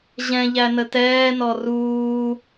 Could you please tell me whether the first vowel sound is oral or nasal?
nasal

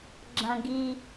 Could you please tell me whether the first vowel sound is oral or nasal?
nasal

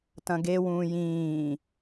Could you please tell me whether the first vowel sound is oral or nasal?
nasal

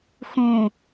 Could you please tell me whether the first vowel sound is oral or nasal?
nasal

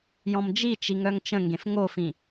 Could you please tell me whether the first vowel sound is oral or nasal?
nasal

